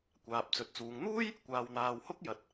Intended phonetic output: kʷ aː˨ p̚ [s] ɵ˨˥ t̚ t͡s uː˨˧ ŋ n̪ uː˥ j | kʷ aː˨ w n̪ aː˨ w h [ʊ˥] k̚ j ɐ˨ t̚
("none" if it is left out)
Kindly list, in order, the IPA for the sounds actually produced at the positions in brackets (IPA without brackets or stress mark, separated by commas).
t͡s, ʊ˥